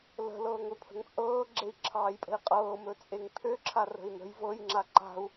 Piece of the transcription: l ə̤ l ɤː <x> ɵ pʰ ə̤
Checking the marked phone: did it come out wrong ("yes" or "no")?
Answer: yes